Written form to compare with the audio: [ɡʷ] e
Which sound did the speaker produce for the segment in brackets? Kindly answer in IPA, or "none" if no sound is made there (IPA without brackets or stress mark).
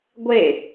ɡʷ